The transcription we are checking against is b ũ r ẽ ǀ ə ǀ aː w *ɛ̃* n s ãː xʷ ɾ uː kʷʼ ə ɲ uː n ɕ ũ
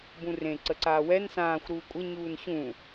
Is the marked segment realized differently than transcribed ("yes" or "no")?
yes